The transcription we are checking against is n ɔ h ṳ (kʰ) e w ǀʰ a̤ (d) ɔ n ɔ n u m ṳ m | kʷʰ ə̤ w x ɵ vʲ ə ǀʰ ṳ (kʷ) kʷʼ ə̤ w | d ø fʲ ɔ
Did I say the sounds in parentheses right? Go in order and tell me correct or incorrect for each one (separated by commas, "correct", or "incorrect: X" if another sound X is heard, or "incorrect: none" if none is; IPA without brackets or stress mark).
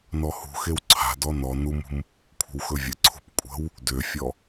incorrect: x, correct, incorrect: p